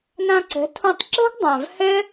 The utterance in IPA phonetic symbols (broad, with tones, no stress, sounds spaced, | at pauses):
n ã˧ ǀ ɛ̤˨˦ tʰ õ˧ tˤ ǁ ɛ̤˦ ɡ dˤ ã˨ v h ɛ˦